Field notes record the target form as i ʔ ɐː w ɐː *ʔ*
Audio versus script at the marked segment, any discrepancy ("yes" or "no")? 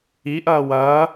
yes